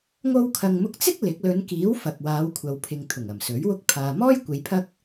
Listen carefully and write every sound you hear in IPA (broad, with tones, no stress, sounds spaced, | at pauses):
ŋ o˧ w kʰ ɐ˨ ŋ m ʊ˧ k̚ t͡s ɪ˥ k̚ l ɪ˨˥ k̚ l ɵ˨˧ n k iː˨˥ w f ɐ˨ k̚ w aː˨˧ w kʷʰ ɐ˨ w pʰ ɪ˨ ŋ t̪ʰ ʊ˨˩ ŋ ɐ˨˩ m s ɵ˨˥ ɥ w ʊ˥ k̚ pʰ aː˨ m ɔː˥ j kʷ e˨˧ j pʰ ɐ˥ k̚